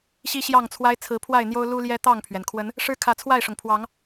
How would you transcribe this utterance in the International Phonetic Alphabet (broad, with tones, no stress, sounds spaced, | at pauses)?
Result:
ɕ i˦ ɕ j ɑ˥˨ ŋ t͡sʰ w a˦ ɪ̯ t͡sʰ ɹ̩˨˦ pʰ w a˥˨ ɪ̯ n̪ j o˦ ʊ̯ l u˦ l j ɛ˦ t̪ ɑ˥˨ ŋ pʰ ɥ ɛ˩ n kʰ w ə˨˦ n | ʂ ɻ̩˦ kʰ ä˨˦ t͡sʰ w a˥˨ ɪ̯ ʂ ʊ˩ ŋ pʰ w ɑ˨˦ ŋ